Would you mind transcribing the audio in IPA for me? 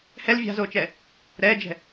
h ɛ l vʲ a̤ z oː t͡ʃ ɛ | ɾ ɛː d͡ʒ ɛ̤

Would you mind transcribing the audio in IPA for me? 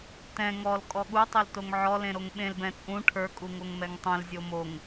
t ɛ̃ ŋ ɔ l kʼ ɔ ɠ u tˤ o l t o ŋ ʕ ɔ l ẽ ɾ o ŋ ɓ ẽ l b ɛ̃ t͡sʼ ũ ʈʰ ə˞ kʼ u ŋ o ŋ m ɛ ŋ tˤ ɛ̃ l zʲ o m o ŋ

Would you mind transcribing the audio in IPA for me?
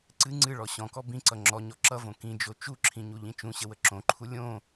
ǀ ɨ ŋ͡ǀ ɨ ɭ ɔ ɕ ɔ̃ k ɔ b ĩ ǀ ʌ ŋ͡ǁ ɔ ɲ ɔ ǁ ʌ v õ k ĩ d͡ʒ o t͡ʃ u ǁʰ ĩ ɲ u ʎ ĩ t͡ʃ ũ ɕ ə w ə ǁ õ ǃʰ u lʲ õ

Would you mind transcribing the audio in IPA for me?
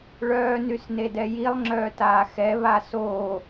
ɭ œː n y s n e d ɛ j i lˠ ŋ͡ǁ œː t aː x ɛ β a s oː

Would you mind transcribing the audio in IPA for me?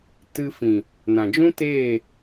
t ɨ˧ f ĩ˨ | n ã˨ d͡ʒ ũ˦ t eː˦˨

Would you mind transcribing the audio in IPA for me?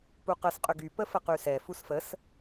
p u q ə s qʼ ʏ ɡ y p ə f ə q y s ɛ f u s f ə s

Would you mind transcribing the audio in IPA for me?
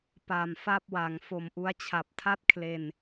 p a˨˩ m f a˥˩ p̚ w a˩˦ ŋ f o˨˩ m ʔ u˦˥ a̯ t͡ɕʰ a˨˩ p̚ tʰ a˥˩ t̚ kʰ l e˧ n

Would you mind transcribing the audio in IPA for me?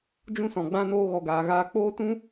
d͡ʒ ũ˦ s ɔ̃˨ ɡ͡b ã˦ n oː˧ ɣ ɔ˨ ɡ aː˨ ɣ aː˧ k͡p oː˦ t ũ˦

